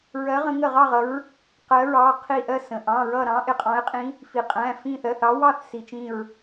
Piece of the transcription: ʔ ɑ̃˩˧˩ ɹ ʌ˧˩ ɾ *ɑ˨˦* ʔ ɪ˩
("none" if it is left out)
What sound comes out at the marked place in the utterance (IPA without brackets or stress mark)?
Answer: ɑ̃˨˦